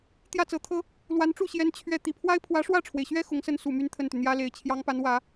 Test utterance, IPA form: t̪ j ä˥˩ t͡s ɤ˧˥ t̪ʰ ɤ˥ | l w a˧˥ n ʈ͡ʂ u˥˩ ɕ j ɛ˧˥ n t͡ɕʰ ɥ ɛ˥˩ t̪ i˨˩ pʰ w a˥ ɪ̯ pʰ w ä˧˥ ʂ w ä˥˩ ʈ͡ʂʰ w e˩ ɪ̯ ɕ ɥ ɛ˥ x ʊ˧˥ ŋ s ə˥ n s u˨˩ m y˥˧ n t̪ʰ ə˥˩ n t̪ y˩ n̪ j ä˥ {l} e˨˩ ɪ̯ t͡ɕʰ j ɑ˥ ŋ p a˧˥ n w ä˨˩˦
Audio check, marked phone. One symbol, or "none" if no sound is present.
l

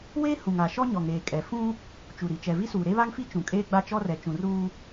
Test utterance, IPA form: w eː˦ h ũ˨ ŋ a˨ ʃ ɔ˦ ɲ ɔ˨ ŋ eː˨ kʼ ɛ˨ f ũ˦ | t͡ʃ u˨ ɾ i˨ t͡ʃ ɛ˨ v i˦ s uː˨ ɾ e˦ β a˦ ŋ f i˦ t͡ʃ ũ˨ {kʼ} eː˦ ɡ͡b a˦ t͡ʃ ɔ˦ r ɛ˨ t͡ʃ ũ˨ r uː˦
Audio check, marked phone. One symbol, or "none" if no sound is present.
kʼ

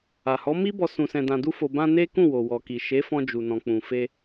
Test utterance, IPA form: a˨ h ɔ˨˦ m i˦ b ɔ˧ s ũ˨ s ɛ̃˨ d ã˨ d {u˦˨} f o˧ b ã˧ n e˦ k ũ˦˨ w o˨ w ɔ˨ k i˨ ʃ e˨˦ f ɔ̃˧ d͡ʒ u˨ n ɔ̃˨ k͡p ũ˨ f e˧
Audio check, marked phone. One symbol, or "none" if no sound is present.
u˧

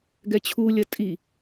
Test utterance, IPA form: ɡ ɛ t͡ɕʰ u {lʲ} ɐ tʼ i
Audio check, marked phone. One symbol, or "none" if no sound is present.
lʲ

